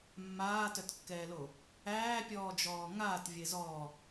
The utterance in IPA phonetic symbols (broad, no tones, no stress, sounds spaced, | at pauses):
mː aː t œ t kː ɛː l o | æː pʲ ɔː d͡ʒ ɔː ŋ aː t vʲ e z ɔː